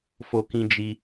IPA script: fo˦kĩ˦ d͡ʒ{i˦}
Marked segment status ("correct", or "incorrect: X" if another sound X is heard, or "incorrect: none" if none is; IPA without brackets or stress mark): correct